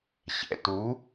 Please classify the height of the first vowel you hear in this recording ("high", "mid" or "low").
mid